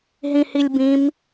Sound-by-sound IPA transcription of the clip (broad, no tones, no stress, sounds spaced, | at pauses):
ɦ ĩ h i lʲ b ĩ m